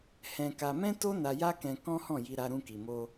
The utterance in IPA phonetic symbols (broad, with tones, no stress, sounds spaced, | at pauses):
h ɛ̃˧ k a˧ m ɛ̃˦ t o˦ n a˧ j a˦ k ɛ̃˧ k ɔ̃˦ h ɔ̃˦˨ j i˧ ɾ a˧ ɾ ũ˧ k i˨ m o˧